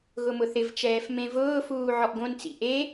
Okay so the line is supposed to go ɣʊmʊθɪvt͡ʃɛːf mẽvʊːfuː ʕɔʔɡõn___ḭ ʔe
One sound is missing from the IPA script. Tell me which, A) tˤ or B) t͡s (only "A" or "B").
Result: B